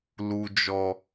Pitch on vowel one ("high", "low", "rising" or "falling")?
high